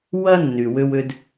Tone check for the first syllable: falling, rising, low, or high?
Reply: high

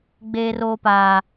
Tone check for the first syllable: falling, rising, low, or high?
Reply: high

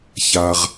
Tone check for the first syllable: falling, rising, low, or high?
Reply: high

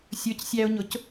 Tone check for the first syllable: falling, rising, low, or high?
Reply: rising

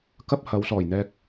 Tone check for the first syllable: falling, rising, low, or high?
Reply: high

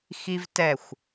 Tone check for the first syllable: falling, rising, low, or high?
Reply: high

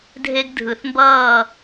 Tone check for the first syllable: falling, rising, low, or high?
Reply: high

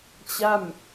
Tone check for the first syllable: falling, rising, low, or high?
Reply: falling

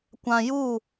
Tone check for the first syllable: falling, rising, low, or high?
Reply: low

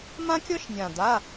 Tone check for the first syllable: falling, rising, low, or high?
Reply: high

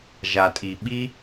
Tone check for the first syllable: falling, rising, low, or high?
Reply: low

